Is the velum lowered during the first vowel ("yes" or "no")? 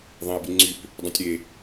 yes